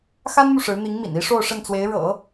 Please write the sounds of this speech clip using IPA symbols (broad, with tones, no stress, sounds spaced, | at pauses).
x a˥ n n̪ u˨ ʂ ɻ̩˧˥ n̪ i˧˥ ŋ m ḭ˨˩ n i˥ ʂ o˥˧ ʊ̯ ʂ ə˥˩ n t͡s w e˧˥ ɪ̯ ɻ ɤ̰˨˩˦